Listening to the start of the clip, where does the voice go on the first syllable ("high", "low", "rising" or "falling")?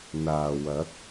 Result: low